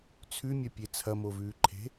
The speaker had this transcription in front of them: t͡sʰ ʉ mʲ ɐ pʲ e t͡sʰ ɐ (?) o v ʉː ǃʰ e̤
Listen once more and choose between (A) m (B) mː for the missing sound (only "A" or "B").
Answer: A